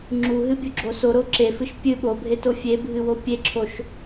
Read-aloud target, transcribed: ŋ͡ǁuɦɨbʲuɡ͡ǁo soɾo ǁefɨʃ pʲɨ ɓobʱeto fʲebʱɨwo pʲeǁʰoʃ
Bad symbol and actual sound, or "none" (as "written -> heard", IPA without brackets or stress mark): none